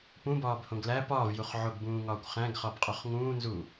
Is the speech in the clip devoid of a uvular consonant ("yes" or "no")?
no